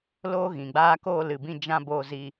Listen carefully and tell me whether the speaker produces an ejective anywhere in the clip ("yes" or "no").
no